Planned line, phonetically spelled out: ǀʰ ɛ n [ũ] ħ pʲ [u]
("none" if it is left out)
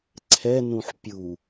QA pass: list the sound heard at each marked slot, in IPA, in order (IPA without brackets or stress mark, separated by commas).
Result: ũ, u